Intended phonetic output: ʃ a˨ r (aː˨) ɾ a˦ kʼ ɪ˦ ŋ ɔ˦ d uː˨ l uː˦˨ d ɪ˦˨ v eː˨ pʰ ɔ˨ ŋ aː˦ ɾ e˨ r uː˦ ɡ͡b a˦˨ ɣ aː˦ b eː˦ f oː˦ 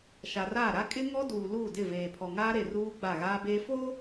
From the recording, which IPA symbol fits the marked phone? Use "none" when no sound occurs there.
aː˦˨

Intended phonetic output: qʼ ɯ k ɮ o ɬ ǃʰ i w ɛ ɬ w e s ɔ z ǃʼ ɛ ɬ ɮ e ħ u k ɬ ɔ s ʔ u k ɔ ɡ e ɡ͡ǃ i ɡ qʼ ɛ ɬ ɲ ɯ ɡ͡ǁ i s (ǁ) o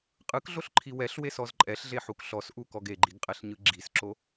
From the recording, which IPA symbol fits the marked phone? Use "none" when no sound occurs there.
ǁ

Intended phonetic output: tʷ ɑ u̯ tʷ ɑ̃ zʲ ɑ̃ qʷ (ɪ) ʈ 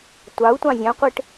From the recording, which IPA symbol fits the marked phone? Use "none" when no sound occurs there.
ɪ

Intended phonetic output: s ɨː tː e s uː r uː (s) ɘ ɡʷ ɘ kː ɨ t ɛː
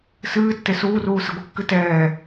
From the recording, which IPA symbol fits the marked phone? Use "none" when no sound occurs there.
s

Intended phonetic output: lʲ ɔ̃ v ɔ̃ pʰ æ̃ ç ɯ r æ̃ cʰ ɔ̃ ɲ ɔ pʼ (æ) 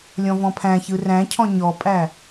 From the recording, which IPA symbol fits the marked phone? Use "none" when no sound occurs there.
æ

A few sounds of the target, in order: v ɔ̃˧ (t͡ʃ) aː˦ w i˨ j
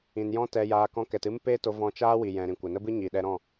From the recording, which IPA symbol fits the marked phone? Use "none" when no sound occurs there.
t͡ʃ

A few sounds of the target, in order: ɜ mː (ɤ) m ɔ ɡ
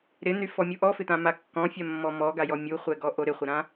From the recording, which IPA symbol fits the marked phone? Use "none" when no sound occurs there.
ɔ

